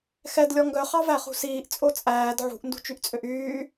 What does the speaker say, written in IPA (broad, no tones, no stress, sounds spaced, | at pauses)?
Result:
x ɛ d lʲ ɔ ŋ ɡ œ χ ɑ v æ χ ṳ s iː ʔ t͡sʼ o t͡sʼ æː d ʕ ṳ ʔ n d ṳ t͡ʃ y ʔ t͡sʼ ø ʔ yː